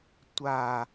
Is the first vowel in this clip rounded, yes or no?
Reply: no